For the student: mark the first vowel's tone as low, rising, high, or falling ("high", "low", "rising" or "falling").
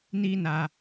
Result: high